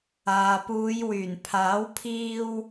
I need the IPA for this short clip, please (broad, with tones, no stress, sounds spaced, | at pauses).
aː˨ p uː˨˧ j w yː˨˩ n pʰ aː˨˥ w pʰ iː˧ w